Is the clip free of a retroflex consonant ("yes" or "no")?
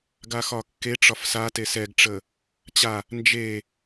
no